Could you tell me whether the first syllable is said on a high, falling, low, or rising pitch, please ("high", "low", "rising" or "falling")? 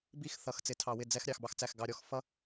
falling